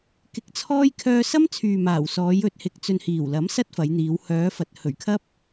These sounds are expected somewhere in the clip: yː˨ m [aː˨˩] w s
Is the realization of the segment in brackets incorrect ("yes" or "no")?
no